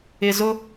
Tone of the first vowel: low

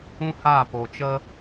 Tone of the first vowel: high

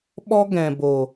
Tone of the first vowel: high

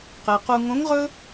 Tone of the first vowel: low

